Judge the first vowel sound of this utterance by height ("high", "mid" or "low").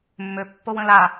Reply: mid